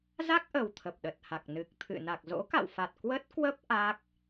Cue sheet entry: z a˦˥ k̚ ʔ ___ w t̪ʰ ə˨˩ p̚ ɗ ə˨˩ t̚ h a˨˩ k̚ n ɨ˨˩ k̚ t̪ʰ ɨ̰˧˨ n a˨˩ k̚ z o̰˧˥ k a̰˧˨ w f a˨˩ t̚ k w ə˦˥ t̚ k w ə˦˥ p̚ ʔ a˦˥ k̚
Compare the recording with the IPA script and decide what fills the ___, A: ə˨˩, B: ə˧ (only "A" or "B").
A